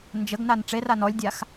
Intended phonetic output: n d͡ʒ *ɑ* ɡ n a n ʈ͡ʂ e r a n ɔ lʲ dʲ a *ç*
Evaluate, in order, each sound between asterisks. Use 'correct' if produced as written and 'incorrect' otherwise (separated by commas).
incorrect, incorrect